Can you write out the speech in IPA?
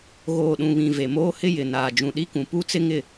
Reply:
ɣ oː˨ ɗ ũ˨ β ĩ˨ v e˨ m oː˦ h ɪ˦ j ɪ˨ n aː˨ d͡ʒ ũ˨ ɗ i˦ k ũ˨ p u˦ t͡s ɪ˦ ŋ ɪ˦˨

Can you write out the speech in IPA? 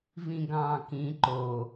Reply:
v ĩ ɡ ɑ̃ː k ĩ ǃ o

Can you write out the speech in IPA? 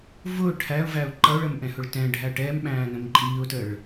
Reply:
v ʊː ʈʰ æ ʊ̯ v æ ʊ̯ ǃ ʌ ʊ̯ ɭ ə m ʔ ɛ̃ h ʊ ɭ t ɛ̃ ɖʱ æ ʈ ɛː m ɓ æ̃ː n ə̃ m ǃʼ iː ʊ̯ t ə ɭ

